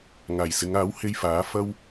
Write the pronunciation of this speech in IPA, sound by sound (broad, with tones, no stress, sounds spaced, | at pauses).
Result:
ŋ aː˨˩ j s ɪ˨˧ ŋ aː˨˥ w h e˧ j f aː˨˥ f ɐ˥ w